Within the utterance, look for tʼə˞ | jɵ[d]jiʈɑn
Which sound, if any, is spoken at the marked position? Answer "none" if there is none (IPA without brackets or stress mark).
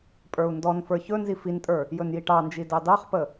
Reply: n